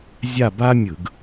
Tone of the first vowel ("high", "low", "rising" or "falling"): falling